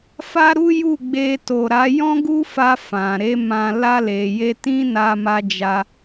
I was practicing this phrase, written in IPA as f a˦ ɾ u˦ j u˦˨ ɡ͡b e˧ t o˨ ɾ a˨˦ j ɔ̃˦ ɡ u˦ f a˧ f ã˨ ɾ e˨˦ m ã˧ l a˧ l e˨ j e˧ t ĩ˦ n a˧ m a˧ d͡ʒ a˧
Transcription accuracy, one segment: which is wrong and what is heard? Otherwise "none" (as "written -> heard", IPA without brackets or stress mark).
none